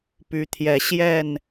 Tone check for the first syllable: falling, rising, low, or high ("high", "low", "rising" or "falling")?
rising